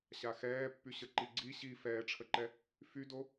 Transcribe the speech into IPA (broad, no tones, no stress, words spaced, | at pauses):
ɕaxɛːpːyɕə ǃiɡ͡ǀi ɕi fɛːʈ͡ʂʰəǃɛ | fydo